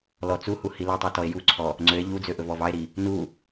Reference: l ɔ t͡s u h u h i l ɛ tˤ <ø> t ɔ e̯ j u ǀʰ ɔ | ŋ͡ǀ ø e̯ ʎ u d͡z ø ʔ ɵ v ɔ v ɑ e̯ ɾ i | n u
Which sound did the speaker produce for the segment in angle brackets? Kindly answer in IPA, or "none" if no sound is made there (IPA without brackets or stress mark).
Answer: ø